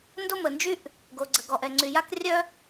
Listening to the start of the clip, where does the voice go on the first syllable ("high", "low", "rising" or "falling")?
high